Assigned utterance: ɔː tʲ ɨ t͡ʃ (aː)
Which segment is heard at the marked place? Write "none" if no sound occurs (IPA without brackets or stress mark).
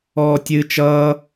ʌː